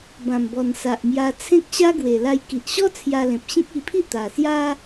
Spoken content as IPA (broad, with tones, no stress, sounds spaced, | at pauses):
b ã˨˩ m b ɔ˨˩ n s a˨ ʔ m j a˧ t͡sʰ ẽ˦ k̚ ɕ a˦ ɡ w e˨˩ l a˧ j k i˨ ʔ ɕ ɔ˦ t͡sʰ j a˧ l ẽ˨ p̚ ɕ ĩ˦ k̚ i˧ pʰ i˥˧ t̪ a˨˩ s j a˦